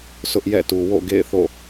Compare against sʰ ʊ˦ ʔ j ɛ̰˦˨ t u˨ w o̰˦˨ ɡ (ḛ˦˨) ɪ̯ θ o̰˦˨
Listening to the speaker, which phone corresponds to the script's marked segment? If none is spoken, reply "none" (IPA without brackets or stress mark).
ḛ˦˨